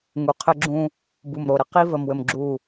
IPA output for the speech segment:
ŋ u˨ qʰ ɘ˦ ɡ͡ǁ ũ˦ | b u˨ m ɾ o˨ ɾ ə˦ q i˦ v ə˨ m w ɘ˨ m ɡ͡ǁ u˦˨

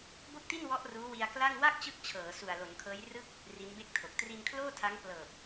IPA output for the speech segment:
b o˥˩ k̚ t i˥˩ n w ɔ˦˥ ʔ r uː˦˥ w i˧ a̯ k l a˥˩ ŋ w a˥˩ k̚ t͡ɕ ɯ˦˥ k̚ t͡ɕʰ ɤː˩˦ s u˨˩ a̯ l o˩˦ n kʰ ɤː˦˥ j r ɯ˥˩ k̚ | r i˦˥ n b e˥˩ k̚ tʰ o˨˩ k̚ t r i˧ n kʰ l oː˥˩ tʰ a˦˥ ŋ p l ɤː˨˩ p̚

